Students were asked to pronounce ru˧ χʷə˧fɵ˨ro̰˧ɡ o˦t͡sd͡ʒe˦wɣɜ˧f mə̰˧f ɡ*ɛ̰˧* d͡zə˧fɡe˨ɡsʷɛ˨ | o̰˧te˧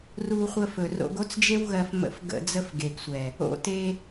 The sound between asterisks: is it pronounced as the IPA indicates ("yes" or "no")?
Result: no